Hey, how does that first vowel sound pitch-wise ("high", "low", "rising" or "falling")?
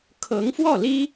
rising